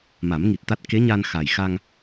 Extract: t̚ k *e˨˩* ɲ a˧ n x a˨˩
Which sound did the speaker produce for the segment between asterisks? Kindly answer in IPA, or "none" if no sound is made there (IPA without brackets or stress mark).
e˧˥